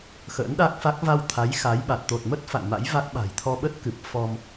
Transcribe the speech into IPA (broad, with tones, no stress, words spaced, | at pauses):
xə̰ː˧˥nɗa˦˥k̚fa˦˥k̚ va˧w t̪ʰa˨˦j xa˨˦jɓa˨˩t̚ t̪o˨˩t̚mə˦˥t̚ fa̰˧˨ŋma̰˧˥jva˦˥k̚ɓa̤˨˩j t̪ʰɔ˧ɓə˦˥t̚kɨ˨˩p̚ fɔ˧m